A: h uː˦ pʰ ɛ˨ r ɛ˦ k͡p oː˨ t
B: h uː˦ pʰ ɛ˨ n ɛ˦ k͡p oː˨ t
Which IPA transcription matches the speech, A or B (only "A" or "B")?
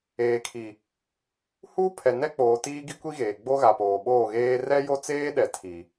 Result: B